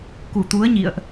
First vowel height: high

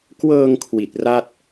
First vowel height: mid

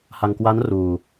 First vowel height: low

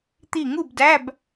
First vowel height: high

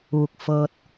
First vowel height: high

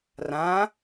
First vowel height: low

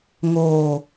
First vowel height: mid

